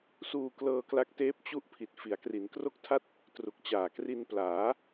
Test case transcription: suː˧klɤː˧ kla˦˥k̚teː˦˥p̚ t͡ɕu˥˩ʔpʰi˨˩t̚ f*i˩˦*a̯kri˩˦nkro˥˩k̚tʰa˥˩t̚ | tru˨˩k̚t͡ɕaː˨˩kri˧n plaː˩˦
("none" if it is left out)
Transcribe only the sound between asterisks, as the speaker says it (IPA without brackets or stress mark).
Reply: i˩˦